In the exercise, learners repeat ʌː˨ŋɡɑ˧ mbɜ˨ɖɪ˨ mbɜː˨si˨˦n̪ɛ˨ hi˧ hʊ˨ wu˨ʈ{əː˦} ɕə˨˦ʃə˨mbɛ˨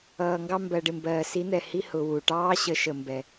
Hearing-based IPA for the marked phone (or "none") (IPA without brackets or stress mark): ɑː˦